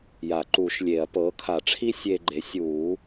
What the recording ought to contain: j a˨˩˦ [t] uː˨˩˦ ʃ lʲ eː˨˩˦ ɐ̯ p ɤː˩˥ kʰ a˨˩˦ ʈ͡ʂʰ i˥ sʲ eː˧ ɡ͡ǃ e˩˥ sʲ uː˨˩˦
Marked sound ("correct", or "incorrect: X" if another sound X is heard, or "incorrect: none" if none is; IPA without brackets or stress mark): incorrect: ǃ